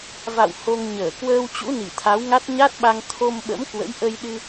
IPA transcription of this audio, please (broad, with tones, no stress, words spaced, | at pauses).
va̰˧˨w ho˧ŋ ɲəː˧˩ kwəː˧w t͡ɕṵ˧˥ni˧˩ t̪ʰa˨˦wŋa˦˥t̚ ɲa˦˥t̚ɓa˧ŋ t̪ʰo˧mɓə̰˧˥mkwə̰˧˥j ʔə˧jɗɨ˧